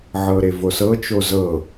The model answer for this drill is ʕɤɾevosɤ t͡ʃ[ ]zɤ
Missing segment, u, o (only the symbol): o